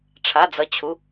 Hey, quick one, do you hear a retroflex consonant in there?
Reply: yes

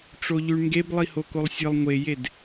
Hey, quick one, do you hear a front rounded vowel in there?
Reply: no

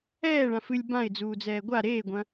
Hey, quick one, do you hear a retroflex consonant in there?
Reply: yes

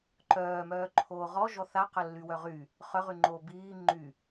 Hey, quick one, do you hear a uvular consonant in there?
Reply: yes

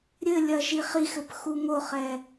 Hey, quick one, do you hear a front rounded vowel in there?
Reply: no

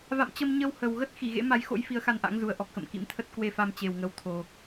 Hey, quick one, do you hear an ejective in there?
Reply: no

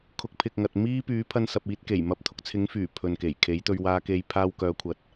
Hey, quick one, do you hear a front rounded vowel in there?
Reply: yes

